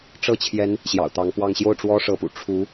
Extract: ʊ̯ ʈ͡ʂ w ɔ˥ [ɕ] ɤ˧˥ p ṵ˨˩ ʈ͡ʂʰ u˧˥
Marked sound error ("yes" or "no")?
yes